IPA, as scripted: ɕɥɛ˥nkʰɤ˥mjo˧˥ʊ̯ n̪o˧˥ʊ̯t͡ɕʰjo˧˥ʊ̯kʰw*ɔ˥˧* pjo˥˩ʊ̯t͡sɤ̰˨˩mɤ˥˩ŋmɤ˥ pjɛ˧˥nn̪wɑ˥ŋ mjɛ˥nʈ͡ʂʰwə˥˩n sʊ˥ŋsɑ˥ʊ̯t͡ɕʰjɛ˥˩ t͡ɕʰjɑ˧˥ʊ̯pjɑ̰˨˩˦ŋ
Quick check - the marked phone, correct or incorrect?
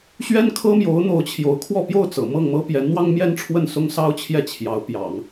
correct